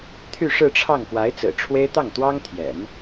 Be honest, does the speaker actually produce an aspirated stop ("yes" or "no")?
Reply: yes